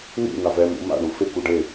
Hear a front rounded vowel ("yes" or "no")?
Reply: no